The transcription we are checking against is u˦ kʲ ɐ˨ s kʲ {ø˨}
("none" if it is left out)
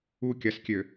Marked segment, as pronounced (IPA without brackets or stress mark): ø˨